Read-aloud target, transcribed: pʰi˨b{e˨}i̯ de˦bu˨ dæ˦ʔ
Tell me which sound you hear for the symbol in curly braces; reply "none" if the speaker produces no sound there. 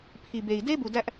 e˨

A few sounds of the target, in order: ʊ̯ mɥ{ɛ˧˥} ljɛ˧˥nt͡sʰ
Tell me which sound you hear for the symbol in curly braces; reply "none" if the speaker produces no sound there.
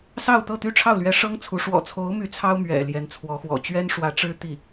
ɛ̰˨˩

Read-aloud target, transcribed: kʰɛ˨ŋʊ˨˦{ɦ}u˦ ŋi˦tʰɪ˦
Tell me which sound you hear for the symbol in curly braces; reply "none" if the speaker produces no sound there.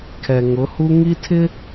h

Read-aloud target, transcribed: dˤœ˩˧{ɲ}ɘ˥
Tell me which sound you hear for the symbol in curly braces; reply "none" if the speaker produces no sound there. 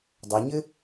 ɲ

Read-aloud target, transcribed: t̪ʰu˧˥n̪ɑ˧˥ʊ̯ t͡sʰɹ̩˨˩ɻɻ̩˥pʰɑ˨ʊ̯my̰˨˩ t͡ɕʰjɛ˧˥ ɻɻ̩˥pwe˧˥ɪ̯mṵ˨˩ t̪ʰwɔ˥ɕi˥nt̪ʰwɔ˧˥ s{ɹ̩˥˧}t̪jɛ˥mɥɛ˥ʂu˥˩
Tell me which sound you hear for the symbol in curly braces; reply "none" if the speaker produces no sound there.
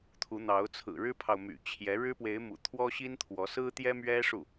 ɹ̩˥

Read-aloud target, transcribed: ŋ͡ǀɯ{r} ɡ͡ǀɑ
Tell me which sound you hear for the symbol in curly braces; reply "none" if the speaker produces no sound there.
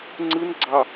n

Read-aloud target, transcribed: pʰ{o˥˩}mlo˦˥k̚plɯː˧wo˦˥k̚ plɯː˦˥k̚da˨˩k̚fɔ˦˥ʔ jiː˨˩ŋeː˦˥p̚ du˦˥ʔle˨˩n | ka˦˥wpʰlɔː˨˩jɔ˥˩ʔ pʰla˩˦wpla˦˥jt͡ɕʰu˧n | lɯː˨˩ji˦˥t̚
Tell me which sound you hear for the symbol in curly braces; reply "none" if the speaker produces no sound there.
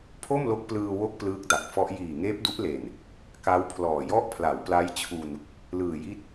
o˥˩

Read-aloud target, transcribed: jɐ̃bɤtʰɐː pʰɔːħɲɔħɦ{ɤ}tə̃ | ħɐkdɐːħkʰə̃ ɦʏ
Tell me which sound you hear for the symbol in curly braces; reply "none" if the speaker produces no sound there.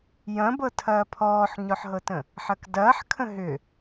ɤ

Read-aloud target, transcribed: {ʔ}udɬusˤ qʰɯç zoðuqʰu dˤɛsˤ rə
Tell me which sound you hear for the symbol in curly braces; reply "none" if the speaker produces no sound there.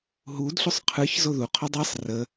ɦ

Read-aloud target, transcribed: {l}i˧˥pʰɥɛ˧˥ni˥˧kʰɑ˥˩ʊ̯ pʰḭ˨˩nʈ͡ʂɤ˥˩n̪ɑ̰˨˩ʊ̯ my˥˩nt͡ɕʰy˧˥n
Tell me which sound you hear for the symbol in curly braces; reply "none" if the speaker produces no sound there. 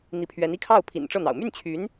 n̪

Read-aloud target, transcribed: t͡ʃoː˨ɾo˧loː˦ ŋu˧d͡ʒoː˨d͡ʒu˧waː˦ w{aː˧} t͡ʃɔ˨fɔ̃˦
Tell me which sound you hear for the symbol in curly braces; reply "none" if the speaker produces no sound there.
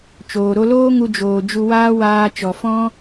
aː˧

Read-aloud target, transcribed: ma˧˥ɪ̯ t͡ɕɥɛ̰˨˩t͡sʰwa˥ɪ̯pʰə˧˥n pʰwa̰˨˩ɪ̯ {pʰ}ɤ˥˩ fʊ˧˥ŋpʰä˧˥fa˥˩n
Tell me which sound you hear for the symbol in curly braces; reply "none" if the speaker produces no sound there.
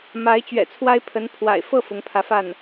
f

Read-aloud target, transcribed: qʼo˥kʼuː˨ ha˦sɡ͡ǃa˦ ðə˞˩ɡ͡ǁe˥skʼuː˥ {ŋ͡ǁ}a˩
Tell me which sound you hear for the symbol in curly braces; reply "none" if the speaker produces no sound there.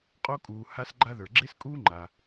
ŋ͡ǃ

